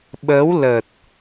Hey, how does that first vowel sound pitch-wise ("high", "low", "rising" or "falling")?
rising